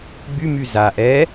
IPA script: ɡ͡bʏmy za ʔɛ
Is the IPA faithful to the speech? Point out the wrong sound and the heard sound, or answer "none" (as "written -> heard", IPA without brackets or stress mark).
ʏ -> y